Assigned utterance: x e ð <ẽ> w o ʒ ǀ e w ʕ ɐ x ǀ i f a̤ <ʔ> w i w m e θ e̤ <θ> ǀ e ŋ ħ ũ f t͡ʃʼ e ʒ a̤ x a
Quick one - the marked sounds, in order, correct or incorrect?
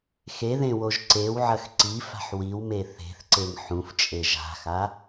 correct, incorrect: ħ, correct

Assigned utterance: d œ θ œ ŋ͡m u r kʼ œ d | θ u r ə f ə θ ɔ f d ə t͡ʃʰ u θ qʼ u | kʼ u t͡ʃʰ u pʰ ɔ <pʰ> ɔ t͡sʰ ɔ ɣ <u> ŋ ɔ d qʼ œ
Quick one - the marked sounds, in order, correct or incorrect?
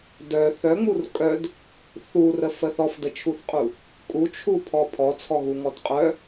correct, correct

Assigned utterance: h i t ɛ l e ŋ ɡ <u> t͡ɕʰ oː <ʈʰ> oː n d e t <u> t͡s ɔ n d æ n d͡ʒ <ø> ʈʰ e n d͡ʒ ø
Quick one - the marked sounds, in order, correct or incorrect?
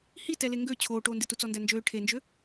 incorrect: ø, incorrect: ʈ, correct, incorrect: øː

